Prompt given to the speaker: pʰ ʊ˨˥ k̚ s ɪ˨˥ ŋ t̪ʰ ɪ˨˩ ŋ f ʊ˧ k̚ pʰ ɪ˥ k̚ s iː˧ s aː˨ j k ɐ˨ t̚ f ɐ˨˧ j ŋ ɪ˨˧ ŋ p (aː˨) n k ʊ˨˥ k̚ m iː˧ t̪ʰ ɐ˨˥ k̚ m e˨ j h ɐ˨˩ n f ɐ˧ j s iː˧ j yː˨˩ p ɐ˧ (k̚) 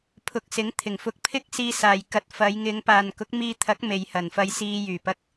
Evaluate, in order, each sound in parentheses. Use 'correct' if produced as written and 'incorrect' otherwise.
correct, correct

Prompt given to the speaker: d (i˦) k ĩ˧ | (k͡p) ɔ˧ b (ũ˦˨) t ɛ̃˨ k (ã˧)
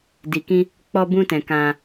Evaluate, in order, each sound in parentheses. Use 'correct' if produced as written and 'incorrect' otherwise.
incorrect: i˨, correct, incorrect: ũ˧, correct

